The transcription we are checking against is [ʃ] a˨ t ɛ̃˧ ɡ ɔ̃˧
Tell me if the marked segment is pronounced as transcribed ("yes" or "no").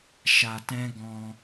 yes